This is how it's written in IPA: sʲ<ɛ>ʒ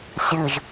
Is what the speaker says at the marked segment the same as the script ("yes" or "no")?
no